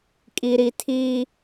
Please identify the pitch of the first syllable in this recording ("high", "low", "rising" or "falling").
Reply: low